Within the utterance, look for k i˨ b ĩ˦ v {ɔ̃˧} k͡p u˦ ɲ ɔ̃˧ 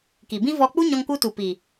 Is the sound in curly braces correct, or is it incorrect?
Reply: incorrect: ɔ˧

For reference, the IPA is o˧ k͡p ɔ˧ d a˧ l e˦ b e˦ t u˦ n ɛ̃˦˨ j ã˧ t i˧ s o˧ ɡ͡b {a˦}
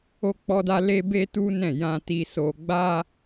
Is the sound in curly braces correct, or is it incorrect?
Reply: correct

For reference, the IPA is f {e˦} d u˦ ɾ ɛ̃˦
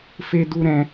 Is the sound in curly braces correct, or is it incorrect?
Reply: correct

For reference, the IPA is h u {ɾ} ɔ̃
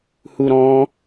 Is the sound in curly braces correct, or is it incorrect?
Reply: correct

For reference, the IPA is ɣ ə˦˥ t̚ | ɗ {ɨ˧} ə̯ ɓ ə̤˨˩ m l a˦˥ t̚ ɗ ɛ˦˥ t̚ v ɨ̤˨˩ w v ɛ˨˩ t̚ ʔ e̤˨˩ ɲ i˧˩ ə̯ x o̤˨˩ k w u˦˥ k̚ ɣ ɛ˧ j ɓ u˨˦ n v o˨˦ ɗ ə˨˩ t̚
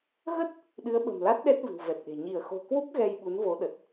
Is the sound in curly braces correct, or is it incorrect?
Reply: incorrect: ɨ˨˦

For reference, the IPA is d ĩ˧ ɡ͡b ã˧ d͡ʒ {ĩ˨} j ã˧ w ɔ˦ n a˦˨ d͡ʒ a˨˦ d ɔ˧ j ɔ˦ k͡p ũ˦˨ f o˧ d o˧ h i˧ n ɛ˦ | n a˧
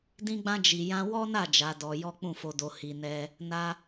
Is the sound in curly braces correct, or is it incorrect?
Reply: incorrect: i˨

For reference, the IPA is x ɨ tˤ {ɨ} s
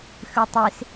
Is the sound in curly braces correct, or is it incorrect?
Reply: incorrect: i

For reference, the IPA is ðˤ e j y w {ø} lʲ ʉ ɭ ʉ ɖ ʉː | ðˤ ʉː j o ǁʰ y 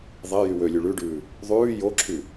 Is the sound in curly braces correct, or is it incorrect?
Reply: correct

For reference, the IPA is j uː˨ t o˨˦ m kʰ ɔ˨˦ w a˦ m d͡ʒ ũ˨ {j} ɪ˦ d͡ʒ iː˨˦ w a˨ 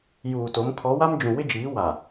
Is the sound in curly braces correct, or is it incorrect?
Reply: incorrect: w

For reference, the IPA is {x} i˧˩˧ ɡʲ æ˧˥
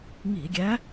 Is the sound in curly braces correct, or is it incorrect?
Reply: incorrect: ŋ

